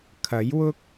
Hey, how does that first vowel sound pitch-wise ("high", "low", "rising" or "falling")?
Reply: rising